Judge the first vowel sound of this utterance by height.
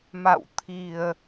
low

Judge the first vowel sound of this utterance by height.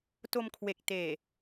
mid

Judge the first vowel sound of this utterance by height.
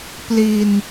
high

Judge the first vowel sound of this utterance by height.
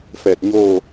mid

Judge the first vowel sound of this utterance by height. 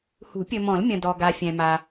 high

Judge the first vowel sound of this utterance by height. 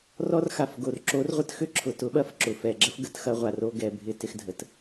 mid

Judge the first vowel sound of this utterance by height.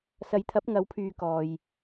low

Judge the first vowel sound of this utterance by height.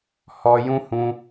mid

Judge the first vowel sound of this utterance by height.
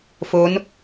mid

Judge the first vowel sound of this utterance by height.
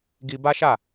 high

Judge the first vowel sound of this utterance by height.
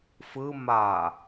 high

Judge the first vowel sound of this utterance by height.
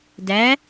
low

